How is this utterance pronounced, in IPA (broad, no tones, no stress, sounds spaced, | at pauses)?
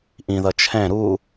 ʔ ĩ ð ʌ t͡ʃʰ ɛ̃ ɾ u